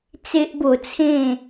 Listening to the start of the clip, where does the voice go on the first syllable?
high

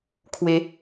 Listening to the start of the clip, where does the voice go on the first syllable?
rising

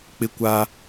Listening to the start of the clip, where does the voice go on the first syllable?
high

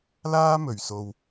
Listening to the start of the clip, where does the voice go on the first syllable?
high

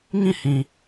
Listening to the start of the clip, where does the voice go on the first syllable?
falling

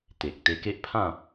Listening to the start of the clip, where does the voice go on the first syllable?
low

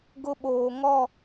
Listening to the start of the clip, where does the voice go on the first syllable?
high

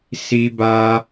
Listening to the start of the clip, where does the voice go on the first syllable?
high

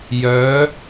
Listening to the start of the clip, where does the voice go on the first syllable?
rising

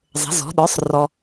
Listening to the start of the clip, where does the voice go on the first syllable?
rising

